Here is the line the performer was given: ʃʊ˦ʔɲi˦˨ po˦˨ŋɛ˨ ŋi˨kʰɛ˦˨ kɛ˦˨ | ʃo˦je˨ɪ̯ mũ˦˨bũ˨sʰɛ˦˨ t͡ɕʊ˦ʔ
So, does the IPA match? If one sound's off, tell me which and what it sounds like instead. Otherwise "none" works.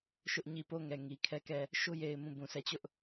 none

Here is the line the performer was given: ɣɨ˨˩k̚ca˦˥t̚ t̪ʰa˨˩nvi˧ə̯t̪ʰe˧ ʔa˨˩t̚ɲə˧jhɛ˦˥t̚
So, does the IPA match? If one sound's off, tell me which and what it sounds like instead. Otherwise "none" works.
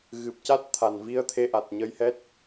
k̚ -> p̚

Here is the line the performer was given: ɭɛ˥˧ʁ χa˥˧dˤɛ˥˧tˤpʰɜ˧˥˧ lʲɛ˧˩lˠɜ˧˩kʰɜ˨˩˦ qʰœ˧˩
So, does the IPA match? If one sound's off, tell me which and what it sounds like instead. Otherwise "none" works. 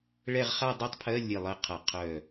kʰ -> qʰ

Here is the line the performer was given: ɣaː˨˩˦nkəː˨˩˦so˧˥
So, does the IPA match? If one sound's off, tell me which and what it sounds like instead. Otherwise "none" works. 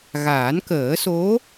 none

